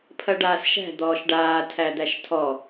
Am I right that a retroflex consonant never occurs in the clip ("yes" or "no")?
no